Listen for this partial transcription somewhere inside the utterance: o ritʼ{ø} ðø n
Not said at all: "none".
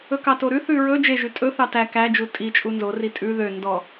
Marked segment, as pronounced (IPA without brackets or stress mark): ʉ